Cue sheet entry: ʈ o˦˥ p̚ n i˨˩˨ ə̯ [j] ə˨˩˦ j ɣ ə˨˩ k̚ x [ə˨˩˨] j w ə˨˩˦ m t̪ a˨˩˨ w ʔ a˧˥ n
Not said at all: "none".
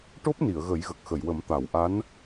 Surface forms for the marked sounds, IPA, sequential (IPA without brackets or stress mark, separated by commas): ɣ, ə˨˩˨